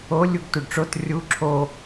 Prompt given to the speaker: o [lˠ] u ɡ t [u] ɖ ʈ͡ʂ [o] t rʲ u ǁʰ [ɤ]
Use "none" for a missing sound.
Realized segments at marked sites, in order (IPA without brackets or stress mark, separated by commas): lʲ, u, o, o